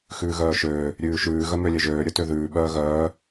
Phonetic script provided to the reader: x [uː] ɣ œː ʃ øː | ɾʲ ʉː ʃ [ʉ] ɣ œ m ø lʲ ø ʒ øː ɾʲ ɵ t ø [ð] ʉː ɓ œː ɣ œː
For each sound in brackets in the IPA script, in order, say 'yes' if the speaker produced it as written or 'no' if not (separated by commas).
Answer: no, no, yes